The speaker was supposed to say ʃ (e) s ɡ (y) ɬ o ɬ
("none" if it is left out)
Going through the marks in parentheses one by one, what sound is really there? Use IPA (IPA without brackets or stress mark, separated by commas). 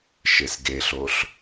e, e